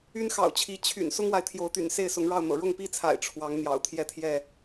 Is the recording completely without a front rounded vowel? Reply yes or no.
no